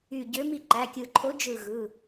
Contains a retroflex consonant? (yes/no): no